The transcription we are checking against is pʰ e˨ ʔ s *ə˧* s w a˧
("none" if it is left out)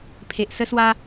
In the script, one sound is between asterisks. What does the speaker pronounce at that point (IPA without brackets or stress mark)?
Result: ə˧